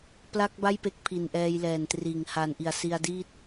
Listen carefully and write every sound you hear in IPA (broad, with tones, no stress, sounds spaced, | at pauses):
p l a˥˩ k̚ b a˥˩ j p e˦˥ k̚ pʰ i˨˩ n ʔ ɛː˧ j l ɛː˨˩ n t r iː˩˦ ŋ h a˨˩ n ʔ i˨˩ a̯ s i˧ a̯ d iː˥˩ t̚